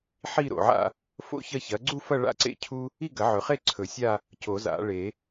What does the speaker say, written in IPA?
ħ i˥˧ ɾ o̰˨ ʕ a̰˥˧ | f o̰˥˧ ç ɐ˥˧ ç ɐ˨˥ ɡ͡ǀ u˥˧ f ɐ˥˧ ɭ a̰˥˧ ǀ ḛ˥˧ cʰ u˥ | i˥˧ ɡ ɐ˨˩˦ ʕ ɵ˨ χ e˥˧ ǀʰ ɵ˨˩˦ sʲ a˥˧ | c o˨˩˦ z a̰˨˩˦ ɭ e˨˩˦

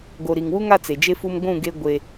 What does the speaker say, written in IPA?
ɡ o˨ ɾ i˨ ŋ w u˦ ŋ a˦ t͡s e˨ d͡ʒ e˦ f u˦ m ɡʷ ũ˦˨ ɡ e˦ ɡʷ e˦

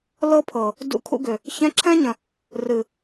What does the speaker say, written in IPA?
l ɤ˦ pʰ ɤ˨ | d ṵ˧ kʰ ṵ˧ ɡ ʏ˨ | ç ɛ̃˧ ǁʰ ɛ̃˦ ɲ ə̃˨ | r ɨ˨

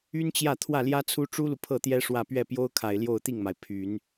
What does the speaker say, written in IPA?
y˥ n t͡ɕ j ä˥˧ t̪ʰ w ä˥˩ l j ä˥ t͡sʰ u˥ ʈ͡ʂ u˥ l u˨ pʰ ɤ˥˩ t̪ j ɛ˥ ʂ w ä˥˧ p ɥ ɛ˥˩ p j o˥ ʊ̯ kʰ a˨˩ ɪ̯ l j o˥˧ ʊ̯ t̪ i˥˩ ŋ m a˩ ɪ̯ pʰ y˨˩˦ n

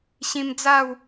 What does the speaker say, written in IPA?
ɕ ĩ˧ m d͡z a˥˧ w

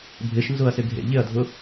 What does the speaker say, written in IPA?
bʱ ɪ ʃ n z ʊ ɐ̯ s ɪ ɡʱ ḛ ʎ ɪ ɐ̯ dʱ ʊ

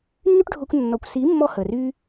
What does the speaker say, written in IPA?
nː y˦ ʈ ɖʱ ʊː˧ kʷ nː ɔ˨ kʷ s i˨˦ mː ɔ˧ h əː˨ r y˦

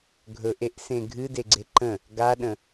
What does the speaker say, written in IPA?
ɡʱ ɵ ʔ e ʔ s ẽ ɡʱ ɨ d e ɡ͡ǀ e ǃ ə̃ | ɡ a ɗ ə̃

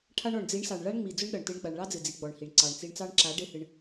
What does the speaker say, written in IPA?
ʈʰ a˧ ɳ ɔ˨ ɳ d͡z i˨˦ ɳ s ɑ˨ ɳ ɭ a˦ ɳ ŋ͡m i˨ d͡z ʊ˦ ɳ ɗ ʌ˨ ɳ t ɨ˨˦ ɳ ɡ͡b a˨ ɳ ɭ ɑ˦ d͡z ɨ˨ d͡z i˨ ɡ͡b ɔ˨ ɳ h i˨ ɳ ǀ ɑ˨ ɳ t͡s i˧ ɳ t͡s ɑ˦ ɳ ǁ a˨˦ ɖ e˦ h ɨ˧ ɳ

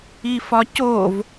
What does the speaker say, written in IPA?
i f ɒ c o v

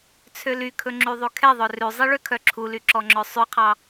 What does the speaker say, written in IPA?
t͡sʰ ø l y kʰ ɵ ŋ͡ǁ y ðˤ ʉ kʰ ɛ ðˤ œ r ʉ zˤ i ɭ ø kʰ œ ǁʰ u l y ǁ ɔ ŋ͡ǁ œ sˤ ʉ qʰ ɑ

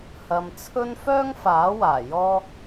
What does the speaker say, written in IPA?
h ɐ˨ m t͡sʰ ɵ˥ n f œː˥ ŋ f aː˨˥ w aː˨˩ j ɔː˥

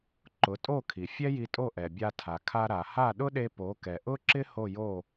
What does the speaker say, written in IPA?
ǃ ʊ˩˥ tʼ o˥˩ kʰ i˩ fʲ ɛ˥ j i˧ tʼ o˥˩ ʔ ɛ˩ bʲ a˧ tʰ a˩ kʰ a˧ ɾ a˩ h a˥˩ ɗ ʊ˥ ɗ e˧ p o˩˥ k ɛ˩ ʔ ʊ˥ ǁ ɪ˥ h o˥˩ j o˥˩

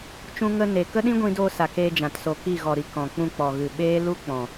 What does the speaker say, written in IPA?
t͡ʃ ũ˧ ŋ ə˧ n e˨ k ə˦ ɗ ĩ˦ ɡʷ ĩ˧ d oː˧ s a˨ k eː˧ d͡ʒ ã˨ t s o˨ k i˦˨ ɣ ɔ˨ ɾ i˨ k ɔ̃˨ k͡p ũ˧ k͡p ɔ˨ ɣ ɨ˨ ɓ eː˦ l u˦ k͡p ɔ̃˨

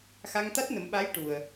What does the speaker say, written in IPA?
x a˧ ŋ t̪ a˦˥ t̚ n ə˨˩˦ m ɓ a˧˥ j ʈ u˨˩ ə̯

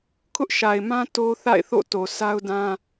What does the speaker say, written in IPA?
kʰ ʊ˦ ʔ ʃ a˨ ɪ̯ m ã˦ t o˦ θ a̰˦˨ ɪ̯ θ o̰˦˨ t o˨ s a˦ ʊ̯ d ã˦

